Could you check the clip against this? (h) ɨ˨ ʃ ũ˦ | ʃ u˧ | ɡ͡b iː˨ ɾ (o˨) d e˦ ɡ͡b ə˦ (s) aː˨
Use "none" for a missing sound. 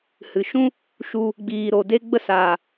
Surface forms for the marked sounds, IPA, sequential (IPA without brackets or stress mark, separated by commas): h, o˨, s